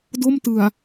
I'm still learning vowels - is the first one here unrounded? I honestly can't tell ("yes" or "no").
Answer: no